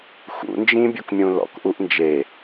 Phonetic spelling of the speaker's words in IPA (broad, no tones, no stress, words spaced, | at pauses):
xṵnd͡ʒĩbʲokmʲũ lɔ̰kʔuʔ nd͡ʒe